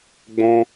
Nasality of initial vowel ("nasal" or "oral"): nasal